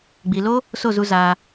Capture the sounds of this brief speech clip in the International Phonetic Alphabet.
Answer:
ɡ͡b i˨ l o˦ | s o˦˨ z u˧ z aː˧

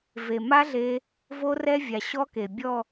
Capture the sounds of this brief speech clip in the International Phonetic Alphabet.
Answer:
v e˨˩ m a˦˥ ɮ e˧ | v o˦˥ r ɛ˦˥ vʲ a˨˩ ɕ ɔ˦˥ k e˨˩ bʲ ɔ˥˧

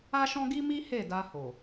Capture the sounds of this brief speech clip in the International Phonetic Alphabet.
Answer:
a˦ ʃ ɔ̃˦ ɡ i˦ m i˦ h e˦˨ d a˧ h o˨

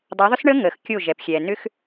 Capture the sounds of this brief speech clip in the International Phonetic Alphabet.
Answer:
dˤ a˨˦ ðˤ ʏ˦ s ɳ əː˦ ŋ əː˨ x kʲ o˦˨ ʒ ɛ˨ p xʲ ɛː˨ n ʏ˦ x

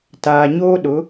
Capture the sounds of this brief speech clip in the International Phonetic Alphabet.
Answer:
t aː˨ ɲ oː˦ ɗ ʊ˨˦

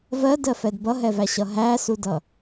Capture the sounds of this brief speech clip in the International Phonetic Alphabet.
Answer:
v ɜ d ɜ f ɛ d b ʌ ɦ ɛ v æ ɕ ʌ ɦ æ s u d ʌ

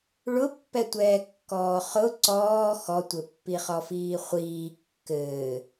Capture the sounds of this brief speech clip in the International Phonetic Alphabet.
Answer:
ɭ ʊ pː ɛ tʷ ɛː kː ɔː χ ʊ ǀ ɔː x ɔ tʷ ɘ pː i χ ɔ f iː χʷ iː kː ɘː

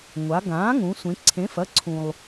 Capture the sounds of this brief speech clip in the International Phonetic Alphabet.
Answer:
ŋʷ a˩˧ ɡ ãː˩˥ ŋ ũ˩˧ sʷ ẽ˩˧ ǀʰ ẽ˩˥ f ɐ˩˧˩ ǀʰ ũ˩ lˠ

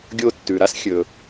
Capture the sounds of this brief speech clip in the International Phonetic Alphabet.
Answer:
ɡʲ o˧ tː ʉ˩ ɾ a˥ s xʲ ɵ˩

